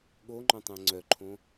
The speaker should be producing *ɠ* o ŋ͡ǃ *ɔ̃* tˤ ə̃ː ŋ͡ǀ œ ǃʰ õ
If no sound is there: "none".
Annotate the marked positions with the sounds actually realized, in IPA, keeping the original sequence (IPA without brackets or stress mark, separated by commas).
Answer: ɠ, ɔ̃